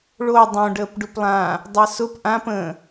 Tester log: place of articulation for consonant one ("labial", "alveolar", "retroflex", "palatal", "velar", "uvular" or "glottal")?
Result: retroflex